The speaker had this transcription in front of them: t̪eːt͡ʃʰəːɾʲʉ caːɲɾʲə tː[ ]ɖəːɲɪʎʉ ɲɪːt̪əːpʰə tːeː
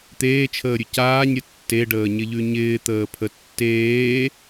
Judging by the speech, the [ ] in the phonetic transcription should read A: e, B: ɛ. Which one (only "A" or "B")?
A